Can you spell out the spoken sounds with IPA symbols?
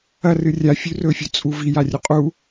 ɐ r ɨ rʲ a fʲ ʉ r ɵ fʲ ɵ t͡sʼ u v i j a rʲ ɵ qʼ u

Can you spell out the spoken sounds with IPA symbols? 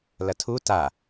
l ɐ tʰ u t a

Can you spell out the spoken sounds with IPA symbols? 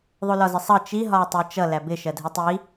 ðˤ u l ɒ z ɪ sˤ ʌ t͡ʃ i ɦ ɒː tˤ əː t͡ʃ ʌ l æ b ɪ ʃ ɜ dʱ i tˤ i

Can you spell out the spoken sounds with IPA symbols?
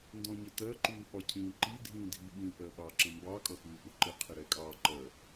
n d ɔ̃ ɲ ə t ɜ ǃ uː ɓ ɒ cʰ ĩː ǃ i dʱ ĩː dʱ i ɓ ĩ ʔ ɜ ɓ ɑ ǁ ə̃ m b ɑ kʼ ʌ x uː ʔ ʊ ǃ ɪ qʰ ɪ ɾ ɛ kʼ ɑː ǃ ɜ

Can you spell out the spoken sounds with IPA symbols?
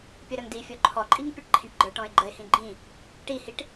pʲ ʌ ɾ ʌ ŋ d i fʲ ɔ ǃʰ ɔ ǃʼ i ŋ pʲ ʌ ʈ ǃʰ ĩ ʈ ɡ͡ǃ ə˞ ʈ ɔ̃ ɪ̯ ɡ͡ǃ ə ɪ̯ h ĩ ɡ͡ǃ ĩ | ʈ i h i ʈ

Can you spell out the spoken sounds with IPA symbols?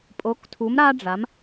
pʼ o˨˥ k tʰ u˨˥ m ɾ a˥ ɖ͡ʐ a˨˥ m

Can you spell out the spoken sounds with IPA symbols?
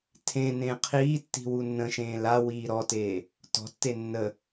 tʰ ẽ n ẽː qʰ iː tː i̤ w u nː ə̃ ʃ ẽː l a w iː ɾ ɔ t eː | t ɔ̤ tː e nː ə

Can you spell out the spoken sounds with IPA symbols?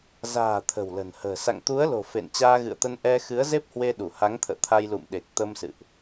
z a̤ː˨˩ t̪ʰ ə̤˨˩ w l ə̤˨˩ n h ə̤ː˨˩ s a̰˧˨ ŋ t̪ u˨˦ ə̯ l o̤˨˩ f ḛ˧˨ n t͡ɕ aː˧ ɣ ɨ̰˧˨ ə̯ t̪ ə˧ n ʔ ɛ˧ x ɨ˨˦ ə̯ z e˦˥ p̚ h w e˧ ɗ u˧˩ h a˨˦ ŋ t̪ʰ ə̰ː˧˨ t̪ʰ a˧ j l ṵ˧˨ m ɗ e˨˩ k̚ t̪ ə˧ m s ɨ̰˧˨ ʔ

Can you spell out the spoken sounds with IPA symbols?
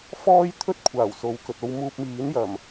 f ɔː˥ j t̪ʰ ɵ˥ t̚ kʷʰ aː˨˩ w s o˨˧ w k ɵ˨ t̚ o˧ w m uː˧ p̚ m iː˨˥ n j ɐ˨˩ m

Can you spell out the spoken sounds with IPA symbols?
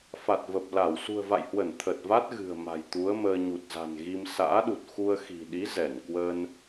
f a˨˩ t̚ v ə˨˩ p̚ l a˧˩ w s ṳ˨˩ ə̯ v a̰˧˨ j h w ə˧˩ n t̪ʰ ə˨˩ t̚ v a˦˥ t̚ ɣ ɨ̤˨˩ ə̯ m a̤˨˩ j t̪ u˨˦ ə̯ m əː˧ ɲ u˨˩ t̚ z a̤˨˩ n ɣ i˧ m s a̰ː˧˥ ɗ u˨˩ t̚ x u˧ ə̯ x i̤˨˩ ɗ i˨˦ z ɛ˧˩ n k w ə˧ n

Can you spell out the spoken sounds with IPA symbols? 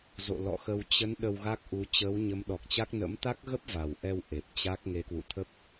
z o̰˧˨ l ɔ̰˧˨ x ə˧ w t͡ɕ ə˨˦ n ɗ ə˧ w ɣ a˦˥ k̚ ʔ u˨˦ t͡ɕ əː˨˦ w ɲ ə˨˦ m ɗ ɔ˨˩ k̚ t͡ɕ a˦˥ k̚ n ə̰˧˥ m t̪ a˦˥ k̚ ɣ ə˦˥ p̚ v a˨˩ w ʔ ɛ˧ w ʔ e˨˩ p̚ t͡ɕ a˦˥ k̚ ŋ e˨˦ k w ṵ˧˨ t̪ʰ ə˦˥ p̚

